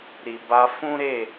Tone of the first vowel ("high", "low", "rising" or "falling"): low